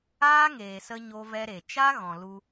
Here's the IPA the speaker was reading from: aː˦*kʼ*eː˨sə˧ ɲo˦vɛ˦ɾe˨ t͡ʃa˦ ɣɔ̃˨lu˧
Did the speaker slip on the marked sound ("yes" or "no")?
yes